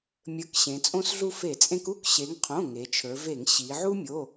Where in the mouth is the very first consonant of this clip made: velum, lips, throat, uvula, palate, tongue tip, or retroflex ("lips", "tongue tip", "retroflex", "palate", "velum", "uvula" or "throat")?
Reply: lips